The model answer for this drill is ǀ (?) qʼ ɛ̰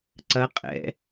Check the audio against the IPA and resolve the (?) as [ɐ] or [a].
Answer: ɐ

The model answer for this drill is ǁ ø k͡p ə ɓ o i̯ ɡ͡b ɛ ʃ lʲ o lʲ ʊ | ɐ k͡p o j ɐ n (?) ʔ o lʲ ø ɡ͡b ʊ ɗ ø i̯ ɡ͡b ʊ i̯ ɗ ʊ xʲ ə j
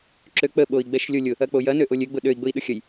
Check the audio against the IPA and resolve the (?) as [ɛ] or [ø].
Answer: ø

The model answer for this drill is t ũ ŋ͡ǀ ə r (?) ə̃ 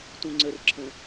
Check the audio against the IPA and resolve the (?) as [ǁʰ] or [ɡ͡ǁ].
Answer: ǁʰ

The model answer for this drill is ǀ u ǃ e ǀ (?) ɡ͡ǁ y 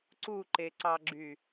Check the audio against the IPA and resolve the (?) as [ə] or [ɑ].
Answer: ɑ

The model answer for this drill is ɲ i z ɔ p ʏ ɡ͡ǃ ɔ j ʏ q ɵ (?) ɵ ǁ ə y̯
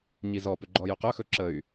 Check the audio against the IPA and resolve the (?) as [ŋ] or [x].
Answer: x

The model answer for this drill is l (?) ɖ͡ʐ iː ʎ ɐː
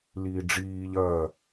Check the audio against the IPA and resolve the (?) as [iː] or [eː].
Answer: iː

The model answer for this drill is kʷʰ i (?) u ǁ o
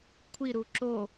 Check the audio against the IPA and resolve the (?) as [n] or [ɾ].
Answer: ɾ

